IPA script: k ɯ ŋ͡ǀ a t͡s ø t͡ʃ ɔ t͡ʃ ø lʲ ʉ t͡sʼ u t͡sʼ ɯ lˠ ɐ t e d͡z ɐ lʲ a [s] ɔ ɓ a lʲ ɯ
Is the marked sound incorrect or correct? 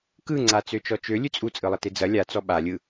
incorrect